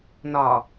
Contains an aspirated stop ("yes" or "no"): no